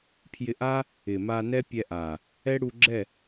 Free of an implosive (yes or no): yes